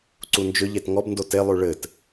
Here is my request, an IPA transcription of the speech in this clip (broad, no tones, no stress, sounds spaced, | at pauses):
ǀ u n d͡ʒ ʏ ʎ e t ŋ ɔ b n d o t e lˠ ʉ ɭ ɘ t